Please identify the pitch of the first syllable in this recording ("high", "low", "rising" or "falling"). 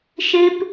high